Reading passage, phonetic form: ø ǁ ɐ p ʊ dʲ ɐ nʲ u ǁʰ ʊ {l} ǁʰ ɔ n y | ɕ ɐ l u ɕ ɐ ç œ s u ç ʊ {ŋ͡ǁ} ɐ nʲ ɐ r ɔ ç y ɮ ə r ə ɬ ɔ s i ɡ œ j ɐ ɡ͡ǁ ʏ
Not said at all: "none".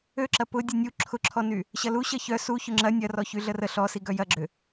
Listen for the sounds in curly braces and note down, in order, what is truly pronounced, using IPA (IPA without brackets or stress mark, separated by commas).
none, ŋ͡ǁ